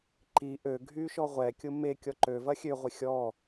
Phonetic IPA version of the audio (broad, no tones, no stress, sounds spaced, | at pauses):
ǃ i ʔ ø ɡʱ y ʃ ɔ ʁʷ ɛ kʲ ʊ m e kʲ ɔ ǃ ø v ɐ xʲ ø ʁʷ ɪ xʲ ɔ